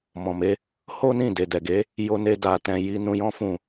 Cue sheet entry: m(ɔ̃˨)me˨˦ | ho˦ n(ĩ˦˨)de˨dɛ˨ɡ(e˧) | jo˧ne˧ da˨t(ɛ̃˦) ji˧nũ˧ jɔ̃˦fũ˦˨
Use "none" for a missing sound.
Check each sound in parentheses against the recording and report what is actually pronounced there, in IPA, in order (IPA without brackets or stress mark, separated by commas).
ɔ̃˨, ĩ˦˨, e˨˦, ɛ̃˨